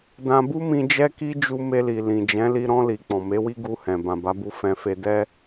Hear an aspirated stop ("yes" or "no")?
no